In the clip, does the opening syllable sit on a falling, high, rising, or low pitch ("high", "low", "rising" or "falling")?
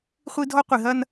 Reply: high